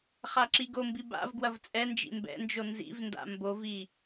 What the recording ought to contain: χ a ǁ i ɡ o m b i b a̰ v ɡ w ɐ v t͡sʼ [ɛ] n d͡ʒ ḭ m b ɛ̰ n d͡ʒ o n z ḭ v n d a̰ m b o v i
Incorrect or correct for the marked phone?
correct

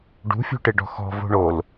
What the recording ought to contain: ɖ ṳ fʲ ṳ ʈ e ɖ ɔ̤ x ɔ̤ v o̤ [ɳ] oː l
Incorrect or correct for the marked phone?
correct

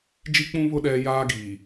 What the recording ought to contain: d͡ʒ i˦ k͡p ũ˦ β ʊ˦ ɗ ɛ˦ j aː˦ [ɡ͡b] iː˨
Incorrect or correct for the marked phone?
incorrect: ɡ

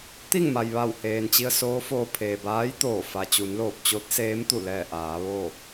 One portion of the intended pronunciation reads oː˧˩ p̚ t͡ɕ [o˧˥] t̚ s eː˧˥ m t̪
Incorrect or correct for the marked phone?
correct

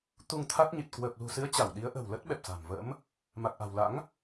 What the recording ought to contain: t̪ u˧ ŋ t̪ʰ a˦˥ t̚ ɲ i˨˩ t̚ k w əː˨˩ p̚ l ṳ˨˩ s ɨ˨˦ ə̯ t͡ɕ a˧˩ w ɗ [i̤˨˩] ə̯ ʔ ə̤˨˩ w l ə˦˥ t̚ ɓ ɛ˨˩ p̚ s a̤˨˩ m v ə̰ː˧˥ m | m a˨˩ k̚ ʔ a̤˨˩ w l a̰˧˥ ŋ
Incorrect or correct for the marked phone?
incorrect: i˨˦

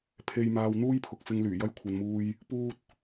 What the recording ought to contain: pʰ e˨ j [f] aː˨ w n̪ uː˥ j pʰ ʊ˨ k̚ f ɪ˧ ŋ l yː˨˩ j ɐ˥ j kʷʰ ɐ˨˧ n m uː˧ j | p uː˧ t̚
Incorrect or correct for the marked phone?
incorrect: m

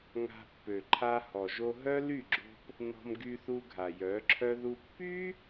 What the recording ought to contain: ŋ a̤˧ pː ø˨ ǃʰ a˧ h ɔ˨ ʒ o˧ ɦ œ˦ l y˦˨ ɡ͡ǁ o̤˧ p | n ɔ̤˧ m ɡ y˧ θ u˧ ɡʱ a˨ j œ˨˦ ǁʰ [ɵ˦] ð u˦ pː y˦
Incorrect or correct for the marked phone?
incorrect: œ˦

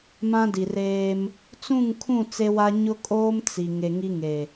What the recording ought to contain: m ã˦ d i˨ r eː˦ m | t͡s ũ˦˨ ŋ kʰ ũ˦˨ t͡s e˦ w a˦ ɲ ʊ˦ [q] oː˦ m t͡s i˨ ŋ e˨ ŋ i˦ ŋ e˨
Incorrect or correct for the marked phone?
incorrect: kʼ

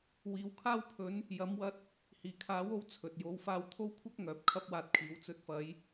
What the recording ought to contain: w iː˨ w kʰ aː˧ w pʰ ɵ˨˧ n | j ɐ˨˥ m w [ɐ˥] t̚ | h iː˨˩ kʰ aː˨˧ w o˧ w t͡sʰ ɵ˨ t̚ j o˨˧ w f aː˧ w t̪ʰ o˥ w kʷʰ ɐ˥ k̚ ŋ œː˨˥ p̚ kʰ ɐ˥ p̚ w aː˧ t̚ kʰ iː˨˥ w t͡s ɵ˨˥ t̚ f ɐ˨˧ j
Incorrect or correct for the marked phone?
incorrect: ɐ˧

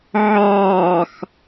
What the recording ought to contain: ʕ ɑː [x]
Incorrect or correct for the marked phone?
correct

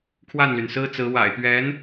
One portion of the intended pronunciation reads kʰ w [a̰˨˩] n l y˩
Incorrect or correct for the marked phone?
incorrect: a˥˩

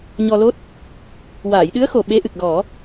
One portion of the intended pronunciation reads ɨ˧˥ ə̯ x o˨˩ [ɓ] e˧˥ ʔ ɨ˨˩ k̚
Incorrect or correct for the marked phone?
correct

